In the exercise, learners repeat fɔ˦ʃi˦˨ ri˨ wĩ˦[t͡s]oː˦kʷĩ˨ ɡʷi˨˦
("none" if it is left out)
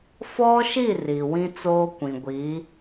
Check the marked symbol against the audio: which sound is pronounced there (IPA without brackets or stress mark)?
t͡s